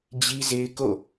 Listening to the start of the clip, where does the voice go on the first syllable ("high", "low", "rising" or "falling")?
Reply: high